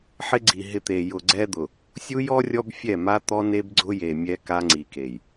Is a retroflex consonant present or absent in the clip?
absent